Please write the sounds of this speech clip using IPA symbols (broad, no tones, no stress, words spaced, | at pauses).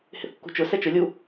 hɪθkːṳt͡ʃʊsɛ t͡ʃʊlʲu